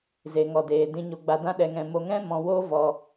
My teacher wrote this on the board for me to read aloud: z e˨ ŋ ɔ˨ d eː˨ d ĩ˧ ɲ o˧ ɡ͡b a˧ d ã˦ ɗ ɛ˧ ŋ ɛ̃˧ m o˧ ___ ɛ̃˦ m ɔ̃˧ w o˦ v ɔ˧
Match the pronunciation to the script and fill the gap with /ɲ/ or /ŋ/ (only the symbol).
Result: ŋ